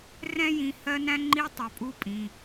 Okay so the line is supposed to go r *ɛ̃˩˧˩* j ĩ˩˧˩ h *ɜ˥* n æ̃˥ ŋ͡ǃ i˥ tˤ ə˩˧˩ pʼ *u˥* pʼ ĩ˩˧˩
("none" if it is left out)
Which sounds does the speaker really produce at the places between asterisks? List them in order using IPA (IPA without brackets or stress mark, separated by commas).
ɛ̃˥, ɜ˥, u˥